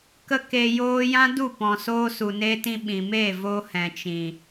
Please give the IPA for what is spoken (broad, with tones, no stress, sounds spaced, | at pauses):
k ə˦ k e˧ j oː˦ j ã˦ d u˦˨ p ɔ̃˨ s oː˧ s u˨ n e˧ t ĩ˧ ɓ ĩ˨ m e˦˨ v o˧ h ɛ̃˨ t͡ʃ ĩ˨